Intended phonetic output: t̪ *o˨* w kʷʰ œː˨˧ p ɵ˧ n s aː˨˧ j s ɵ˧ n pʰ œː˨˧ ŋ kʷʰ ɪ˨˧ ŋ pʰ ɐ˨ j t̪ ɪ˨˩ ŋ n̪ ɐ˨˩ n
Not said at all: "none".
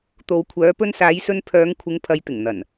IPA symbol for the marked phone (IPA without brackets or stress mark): o˨